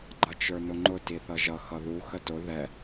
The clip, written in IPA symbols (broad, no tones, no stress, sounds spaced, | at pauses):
ɡ͡ǃ ʌ t͡ʃ ə˞ n ʊ ŋ͡ǃ ʊ t i θ ʌ ʒ ʌ x ʌ ð u x ə t ʊ ð ɛ